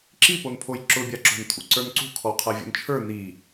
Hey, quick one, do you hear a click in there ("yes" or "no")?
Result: yes